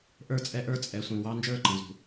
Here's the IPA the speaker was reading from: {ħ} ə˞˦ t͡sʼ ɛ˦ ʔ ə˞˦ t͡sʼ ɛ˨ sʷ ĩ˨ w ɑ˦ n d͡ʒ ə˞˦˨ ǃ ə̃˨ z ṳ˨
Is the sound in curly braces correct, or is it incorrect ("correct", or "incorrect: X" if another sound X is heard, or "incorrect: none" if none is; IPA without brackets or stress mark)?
incorrect: ʔ